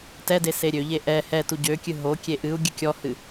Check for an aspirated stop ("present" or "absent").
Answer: absent